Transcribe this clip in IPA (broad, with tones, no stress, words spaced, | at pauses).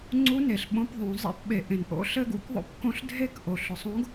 ŋ͡ǀu˧˥ne˩ɬɓõ˧p ðˤõ˩˧ zˤḛ˧pɓe˩ʔẽ˩nʔo̰˧ ɬɘ˥ɡṵ˧kðˤo̰˥p kõ˧˥ɬdʱe˥k ʔo˩ɬʊ˩sˤõ˧˥ɡ